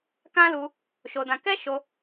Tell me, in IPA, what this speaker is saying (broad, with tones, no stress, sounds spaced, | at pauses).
k ã˦ l u˧ | ʃ o˧ d ã˧ k ɛ˦ ʃ o˧